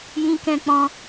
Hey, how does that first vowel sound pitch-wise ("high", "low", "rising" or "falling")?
high